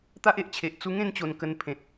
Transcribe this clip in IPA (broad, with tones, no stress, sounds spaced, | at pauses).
t̪ a˦ ʔ e˨ ʔ t͡ɕʰ e˨ ʔ t͡s u˧ ŋ ẽ˥˧ n t͡ɕ o˨˩ n k ə˧ n pʰ ẽ˨ t̚